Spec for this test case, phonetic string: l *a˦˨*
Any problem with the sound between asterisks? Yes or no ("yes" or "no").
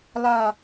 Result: no